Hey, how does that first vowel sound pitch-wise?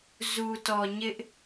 low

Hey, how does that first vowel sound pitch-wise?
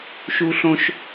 high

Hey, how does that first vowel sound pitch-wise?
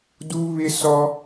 high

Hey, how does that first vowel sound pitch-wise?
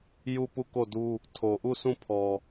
falling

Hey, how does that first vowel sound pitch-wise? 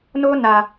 high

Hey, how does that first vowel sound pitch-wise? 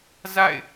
falling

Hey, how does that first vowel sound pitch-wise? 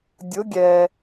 rising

